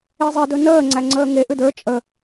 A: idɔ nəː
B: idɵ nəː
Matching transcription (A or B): B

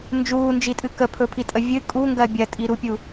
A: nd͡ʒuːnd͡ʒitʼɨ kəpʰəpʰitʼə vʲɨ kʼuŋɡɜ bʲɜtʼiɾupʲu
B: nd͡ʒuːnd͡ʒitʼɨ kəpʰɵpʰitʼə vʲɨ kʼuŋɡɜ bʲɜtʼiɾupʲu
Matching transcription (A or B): B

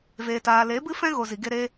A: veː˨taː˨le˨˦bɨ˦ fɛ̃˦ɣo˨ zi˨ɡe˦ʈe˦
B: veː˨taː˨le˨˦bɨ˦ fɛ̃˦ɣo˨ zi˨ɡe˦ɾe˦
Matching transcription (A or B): B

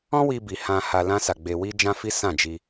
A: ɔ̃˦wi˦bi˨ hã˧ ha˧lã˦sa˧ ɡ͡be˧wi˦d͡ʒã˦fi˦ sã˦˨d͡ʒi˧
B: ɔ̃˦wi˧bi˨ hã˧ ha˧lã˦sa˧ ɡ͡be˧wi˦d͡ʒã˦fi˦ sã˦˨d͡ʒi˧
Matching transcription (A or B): B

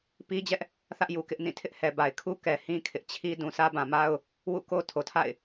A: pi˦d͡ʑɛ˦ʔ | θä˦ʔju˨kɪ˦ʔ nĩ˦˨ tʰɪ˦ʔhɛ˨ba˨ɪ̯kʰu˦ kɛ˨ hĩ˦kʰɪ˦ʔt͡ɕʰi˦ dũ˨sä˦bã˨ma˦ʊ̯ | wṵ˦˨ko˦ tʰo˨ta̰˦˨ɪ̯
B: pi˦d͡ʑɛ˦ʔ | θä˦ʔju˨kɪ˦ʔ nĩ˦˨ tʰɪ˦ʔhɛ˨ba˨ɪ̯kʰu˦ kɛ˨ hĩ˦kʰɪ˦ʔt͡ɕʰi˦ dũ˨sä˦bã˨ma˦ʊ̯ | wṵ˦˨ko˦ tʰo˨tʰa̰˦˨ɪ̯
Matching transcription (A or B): B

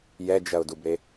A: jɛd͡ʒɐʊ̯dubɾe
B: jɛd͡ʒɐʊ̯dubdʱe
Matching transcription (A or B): A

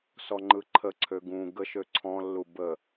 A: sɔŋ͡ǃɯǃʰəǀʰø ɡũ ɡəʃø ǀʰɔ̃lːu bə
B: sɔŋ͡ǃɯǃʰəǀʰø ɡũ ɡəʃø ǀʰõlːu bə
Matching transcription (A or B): A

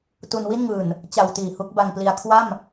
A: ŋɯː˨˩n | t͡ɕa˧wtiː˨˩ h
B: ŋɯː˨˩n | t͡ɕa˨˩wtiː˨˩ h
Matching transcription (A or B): B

